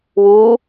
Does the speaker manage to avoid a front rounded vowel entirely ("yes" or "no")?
yes